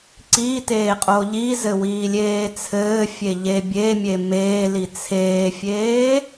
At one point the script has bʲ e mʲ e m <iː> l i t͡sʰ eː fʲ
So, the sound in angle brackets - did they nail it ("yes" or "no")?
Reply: no